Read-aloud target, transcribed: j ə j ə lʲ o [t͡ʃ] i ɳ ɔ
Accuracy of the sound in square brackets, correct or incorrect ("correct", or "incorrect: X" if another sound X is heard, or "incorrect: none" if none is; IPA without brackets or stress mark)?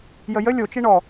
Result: correct